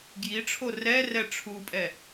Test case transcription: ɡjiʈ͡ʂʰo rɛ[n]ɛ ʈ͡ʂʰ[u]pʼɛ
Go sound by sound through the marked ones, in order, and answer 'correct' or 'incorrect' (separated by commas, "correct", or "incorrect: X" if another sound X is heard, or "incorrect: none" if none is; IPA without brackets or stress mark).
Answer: incorrect: r, correct